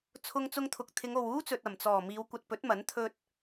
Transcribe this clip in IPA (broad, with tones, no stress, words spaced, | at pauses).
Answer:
t͡sʰʊ˧ŋt͡sʊ˧ŋt̪ʰʊ˨k̚ t̪ʰɪ˨˧ŋo˨wuː˥t͡sɵ˨t̚ ɐ˨˩mt͡sɔː˨˩ miː˨˧wkʷɐ˨t̚pɵ˨˥t̚mɐ˨˥n t̪ʰɵ˧t̚